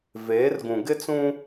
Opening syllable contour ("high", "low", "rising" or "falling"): rising